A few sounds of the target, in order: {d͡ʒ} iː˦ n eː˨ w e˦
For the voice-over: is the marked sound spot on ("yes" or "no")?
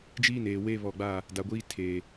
yes